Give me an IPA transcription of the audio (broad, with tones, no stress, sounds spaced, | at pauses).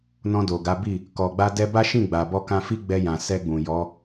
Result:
n ɔ̃˧ d o˨ ɡ a˨˦ b i˦˨ | k ɔ˨ ɡ͡b a˧ d ɛ˧ b a˦ ʃ ĩ˦˨ ɡ͡b a˨ b ɔ˧ k ã˧ f i˦ ɡ͡b ɛ˧ j ã˨ s ɛ˧ ɡ͡b ũ˨ j ɔ˨˦